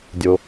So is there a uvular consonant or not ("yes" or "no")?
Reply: no